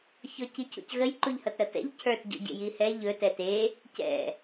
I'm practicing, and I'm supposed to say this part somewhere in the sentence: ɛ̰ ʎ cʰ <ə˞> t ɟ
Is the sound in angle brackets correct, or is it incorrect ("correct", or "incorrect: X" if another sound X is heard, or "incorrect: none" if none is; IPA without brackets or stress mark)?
correct